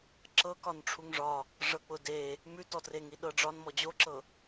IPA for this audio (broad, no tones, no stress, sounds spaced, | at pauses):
ǁ ɤ k ɒ n ʈ͡ʂʰ u ŋ ʐ ɒ | ʐ ɤ k͡p ʊ d e | m ʉ t ɔ t r e ŋ i ɗ ɤ ɖ͡ʐ ɒ n m ɔ d͡ʑ o ǁ ɤ